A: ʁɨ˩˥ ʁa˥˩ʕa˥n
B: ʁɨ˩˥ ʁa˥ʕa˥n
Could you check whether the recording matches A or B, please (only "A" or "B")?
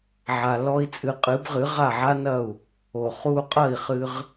A